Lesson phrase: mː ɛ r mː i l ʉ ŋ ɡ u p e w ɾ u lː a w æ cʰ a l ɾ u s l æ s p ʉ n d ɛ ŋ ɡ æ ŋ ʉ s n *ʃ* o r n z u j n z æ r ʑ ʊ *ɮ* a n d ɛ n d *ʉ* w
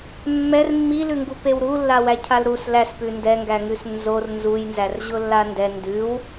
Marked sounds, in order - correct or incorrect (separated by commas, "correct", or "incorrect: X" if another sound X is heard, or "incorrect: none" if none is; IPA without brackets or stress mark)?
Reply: incorrect: z, incorrect: lː, correct